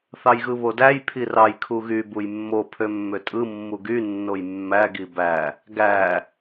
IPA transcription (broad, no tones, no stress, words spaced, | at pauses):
θɑjɣɯβodæj pʰirɑj kʰuɣy bujmːo pʰømːøtʼɯ mːuɡy nːojmːæ ɡibæ | ɡæ